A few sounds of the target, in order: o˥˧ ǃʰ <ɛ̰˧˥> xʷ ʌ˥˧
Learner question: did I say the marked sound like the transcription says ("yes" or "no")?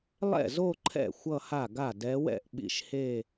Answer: no